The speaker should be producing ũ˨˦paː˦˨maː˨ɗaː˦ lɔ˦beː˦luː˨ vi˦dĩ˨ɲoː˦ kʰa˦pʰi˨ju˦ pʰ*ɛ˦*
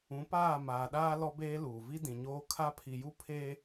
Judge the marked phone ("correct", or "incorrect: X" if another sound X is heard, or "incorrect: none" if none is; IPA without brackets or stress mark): incorrect: e˦